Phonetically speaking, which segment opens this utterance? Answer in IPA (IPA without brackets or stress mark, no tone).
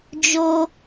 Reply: d͡ʒ